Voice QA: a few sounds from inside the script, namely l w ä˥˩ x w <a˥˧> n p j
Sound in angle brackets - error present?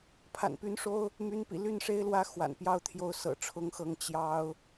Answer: yes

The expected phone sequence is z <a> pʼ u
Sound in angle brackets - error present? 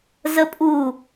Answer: yes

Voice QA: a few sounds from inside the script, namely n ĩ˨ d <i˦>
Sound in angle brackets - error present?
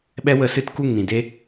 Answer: yes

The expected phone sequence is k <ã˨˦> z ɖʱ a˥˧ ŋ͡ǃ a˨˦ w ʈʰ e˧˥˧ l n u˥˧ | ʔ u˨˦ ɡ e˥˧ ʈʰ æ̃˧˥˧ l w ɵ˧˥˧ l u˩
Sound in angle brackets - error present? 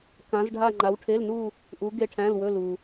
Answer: no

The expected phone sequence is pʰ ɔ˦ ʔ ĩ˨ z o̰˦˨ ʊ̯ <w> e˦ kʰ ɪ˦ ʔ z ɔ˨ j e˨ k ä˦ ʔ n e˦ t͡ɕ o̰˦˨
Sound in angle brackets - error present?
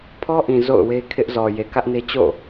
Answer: no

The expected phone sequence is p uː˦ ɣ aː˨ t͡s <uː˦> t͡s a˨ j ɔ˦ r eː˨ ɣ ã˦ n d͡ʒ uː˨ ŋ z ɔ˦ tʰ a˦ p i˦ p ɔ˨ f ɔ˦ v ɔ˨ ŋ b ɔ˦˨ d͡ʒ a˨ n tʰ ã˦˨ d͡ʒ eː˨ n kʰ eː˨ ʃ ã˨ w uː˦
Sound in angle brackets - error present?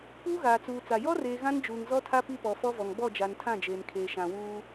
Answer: yes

